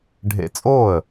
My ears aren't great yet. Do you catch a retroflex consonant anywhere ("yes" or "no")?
yes